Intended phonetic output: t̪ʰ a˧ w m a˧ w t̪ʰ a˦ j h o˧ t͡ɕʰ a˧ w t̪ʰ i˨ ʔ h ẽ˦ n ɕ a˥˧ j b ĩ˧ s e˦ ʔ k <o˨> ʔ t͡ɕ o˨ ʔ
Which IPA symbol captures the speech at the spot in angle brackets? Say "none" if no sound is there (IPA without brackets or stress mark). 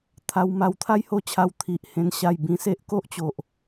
o˦